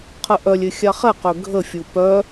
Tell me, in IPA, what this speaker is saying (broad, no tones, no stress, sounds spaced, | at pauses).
qʰ ə ʔ œ lʲ ɪ xʲ a χ ɛ q ø ɡʱ ə fʲ u p œ